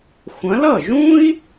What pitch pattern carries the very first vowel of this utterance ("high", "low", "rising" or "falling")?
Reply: rising